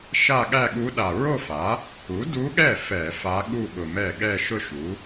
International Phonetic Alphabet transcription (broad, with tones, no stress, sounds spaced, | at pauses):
ʃ a˥˧ ɠ æ˥˧ ɠ u˧˥ ɗ a˨˩ ɹ o˥˧ f a˩˥ | u˩˥ d u˧˥ ɠ ɛ˥˩ f ɛ˧˩˧ f a˧˥ ɠ u˥˧ ɓ ʊ˨˩ m ɛ˥˩ ɠ ɛ˥˧ ʃ ʊ˥˧ ʃ u˩˥